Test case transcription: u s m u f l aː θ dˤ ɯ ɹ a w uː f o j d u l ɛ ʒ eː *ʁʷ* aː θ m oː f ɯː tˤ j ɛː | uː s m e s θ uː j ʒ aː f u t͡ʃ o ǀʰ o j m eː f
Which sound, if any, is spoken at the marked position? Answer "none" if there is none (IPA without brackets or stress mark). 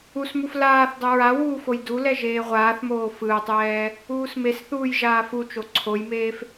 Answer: ʁʷ